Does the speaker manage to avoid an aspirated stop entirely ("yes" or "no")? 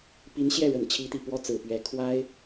no